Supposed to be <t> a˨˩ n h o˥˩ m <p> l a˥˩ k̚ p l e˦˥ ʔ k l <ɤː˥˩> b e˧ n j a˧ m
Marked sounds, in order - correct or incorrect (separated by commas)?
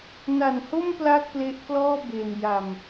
incorrect, correct, incorrect